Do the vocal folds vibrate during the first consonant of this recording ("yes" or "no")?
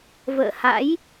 yes